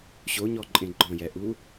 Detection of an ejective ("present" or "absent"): present